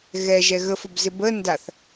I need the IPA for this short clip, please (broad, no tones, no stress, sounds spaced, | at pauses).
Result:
ɣ ɛ ʒ ɛ ɣ ə f ə b z ɪ b ə n d a θ